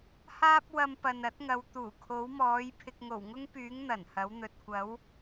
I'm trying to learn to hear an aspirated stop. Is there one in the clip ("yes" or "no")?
yes